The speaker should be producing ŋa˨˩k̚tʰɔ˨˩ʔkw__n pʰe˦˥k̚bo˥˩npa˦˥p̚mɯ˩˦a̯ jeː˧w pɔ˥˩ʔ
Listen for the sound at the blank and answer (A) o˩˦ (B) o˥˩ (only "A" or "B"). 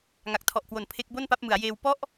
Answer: A